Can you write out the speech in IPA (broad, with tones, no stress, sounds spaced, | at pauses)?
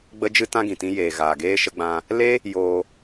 ɡ͡b ə˦ d͡ʒ ɨ˦ t ã˦ ɡ ĩ˨ t ĩ˧ j eː˨ ɣ aː˨ ɡ eː˧ ʃ ə˧ ɡ͡b ã˧ | l e˦ | j oː˧